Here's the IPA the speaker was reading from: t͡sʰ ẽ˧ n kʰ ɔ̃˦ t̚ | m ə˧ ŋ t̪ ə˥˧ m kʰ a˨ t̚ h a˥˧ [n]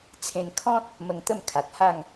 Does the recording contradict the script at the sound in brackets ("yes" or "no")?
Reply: yes